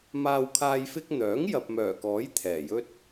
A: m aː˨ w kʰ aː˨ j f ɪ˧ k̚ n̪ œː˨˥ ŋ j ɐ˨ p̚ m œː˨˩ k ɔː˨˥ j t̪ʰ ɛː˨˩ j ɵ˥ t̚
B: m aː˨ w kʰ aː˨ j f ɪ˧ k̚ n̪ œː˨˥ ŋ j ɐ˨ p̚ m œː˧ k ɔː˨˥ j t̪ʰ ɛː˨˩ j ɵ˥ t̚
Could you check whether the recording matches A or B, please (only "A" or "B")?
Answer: A